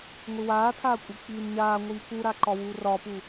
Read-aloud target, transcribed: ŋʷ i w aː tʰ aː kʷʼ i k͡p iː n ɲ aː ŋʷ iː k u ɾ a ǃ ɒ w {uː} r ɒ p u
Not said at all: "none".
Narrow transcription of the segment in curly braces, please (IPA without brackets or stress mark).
uː